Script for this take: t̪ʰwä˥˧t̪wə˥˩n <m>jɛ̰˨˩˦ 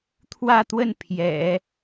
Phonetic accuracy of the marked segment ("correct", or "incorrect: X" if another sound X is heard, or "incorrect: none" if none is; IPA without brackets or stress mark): incorrect: pʰ